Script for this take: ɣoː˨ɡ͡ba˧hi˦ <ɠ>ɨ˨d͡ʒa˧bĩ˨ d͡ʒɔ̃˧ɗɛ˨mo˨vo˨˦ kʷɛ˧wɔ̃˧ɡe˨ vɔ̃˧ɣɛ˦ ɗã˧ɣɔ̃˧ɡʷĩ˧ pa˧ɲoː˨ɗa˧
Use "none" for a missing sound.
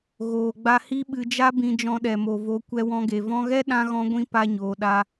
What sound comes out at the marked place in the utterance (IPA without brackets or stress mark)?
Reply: ɓ